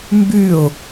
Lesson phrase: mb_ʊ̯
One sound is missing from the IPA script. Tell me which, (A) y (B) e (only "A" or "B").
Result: A